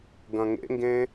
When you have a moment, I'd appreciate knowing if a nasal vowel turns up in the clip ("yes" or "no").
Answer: yes